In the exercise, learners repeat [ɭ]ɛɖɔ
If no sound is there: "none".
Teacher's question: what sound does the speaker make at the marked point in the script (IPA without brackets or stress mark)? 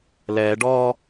l